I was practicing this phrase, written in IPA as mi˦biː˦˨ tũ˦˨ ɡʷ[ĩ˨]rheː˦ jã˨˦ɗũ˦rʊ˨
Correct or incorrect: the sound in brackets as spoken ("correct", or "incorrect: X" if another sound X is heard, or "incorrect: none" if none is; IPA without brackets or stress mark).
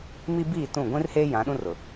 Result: incorrect: ĩ˦